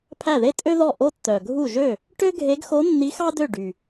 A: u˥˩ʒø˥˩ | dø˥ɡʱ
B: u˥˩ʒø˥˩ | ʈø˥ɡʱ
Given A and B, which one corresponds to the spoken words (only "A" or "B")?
B